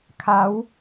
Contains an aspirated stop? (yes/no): yes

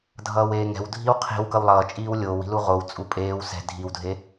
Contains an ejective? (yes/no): yes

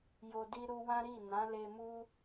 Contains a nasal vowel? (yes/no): yes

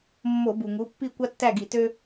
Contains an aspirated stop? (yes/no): no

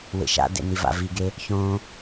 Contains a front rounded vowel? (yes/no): no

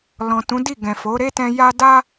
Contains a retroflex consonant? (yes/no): no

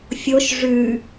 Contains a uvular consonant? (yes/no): no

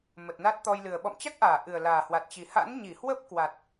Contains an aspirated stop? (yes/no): no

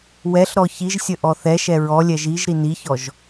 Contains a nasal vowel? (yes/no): no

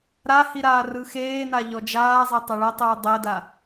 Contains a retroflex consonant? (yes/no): yes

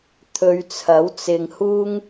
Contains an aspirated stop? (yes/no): yes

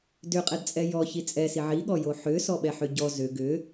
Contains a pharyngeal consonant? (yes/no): yes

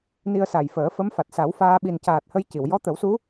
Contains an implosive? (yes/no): yes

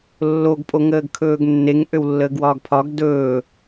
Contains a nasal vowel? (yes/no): no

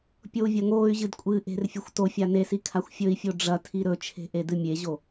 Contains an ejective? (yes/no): yes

